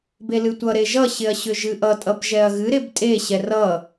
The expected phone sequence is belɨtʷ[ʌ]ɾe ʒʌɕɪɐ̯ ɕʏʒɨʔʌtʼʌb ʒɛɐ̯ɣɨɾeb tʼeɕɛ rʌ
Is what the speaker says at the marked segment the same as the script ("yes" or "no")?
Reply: yes